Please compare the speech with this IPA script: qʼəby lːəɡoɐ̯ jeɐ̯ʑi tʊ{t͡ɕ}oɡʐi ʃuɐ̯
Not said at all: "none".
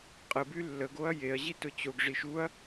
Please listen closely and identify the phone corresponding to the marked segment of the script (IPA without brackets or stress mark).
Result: t͡ɕ